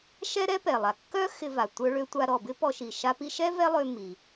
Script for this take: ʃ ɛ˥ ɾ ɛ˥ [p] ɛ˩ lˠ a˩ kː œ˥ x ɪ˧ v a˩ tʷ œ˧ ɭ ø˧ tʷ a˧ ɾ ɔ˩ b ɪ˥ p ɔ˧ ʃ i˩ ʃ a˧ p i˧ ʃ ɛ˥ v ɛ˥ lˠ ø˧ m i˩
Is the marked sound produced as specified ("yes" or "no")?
yes